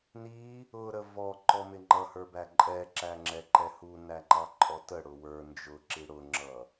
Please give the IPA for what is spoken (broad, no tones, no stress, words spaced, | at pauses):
ni | ʊɾə vɔǃɔmɪ ŋ͡ǃʌhə˞bæ ǃʼɛǁæŋ͡ǁɛǃɛ hunæŋ͡ǃɑǃʼɔ təɽʊ wə˞ nd͡ʒʊǁi ɽʊŋ͡ǁʌ